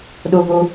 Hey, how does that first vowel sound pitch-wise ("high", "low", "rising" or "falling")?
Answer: low